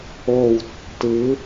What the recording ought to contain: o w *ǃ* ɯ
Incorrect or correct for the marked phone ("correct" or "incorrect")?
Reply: incorrect